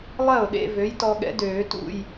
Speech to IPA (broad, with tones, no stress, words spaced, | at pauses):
lˠɜ˥˩o̯ɗḛ˧vø˨˥jtɔ˧ ɠɛ̰˨˥døː˨˩˦tṵ˥˩j